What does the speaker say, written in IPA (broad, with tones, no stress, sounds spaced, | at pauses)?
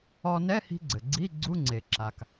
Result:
ɔ˧ n ɛ˧˥˧ h i̤˧ ɡ͡ǀ ɘ˩ ɡ͡ǀ i˧˥˧ ɡ͡ǀ u˧˥˧ ŋ͡ǀ e˩ ǁ a˩ k